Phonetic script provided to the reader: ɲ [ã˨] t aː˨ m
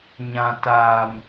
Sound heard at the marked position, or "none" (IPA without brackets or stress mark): ã˨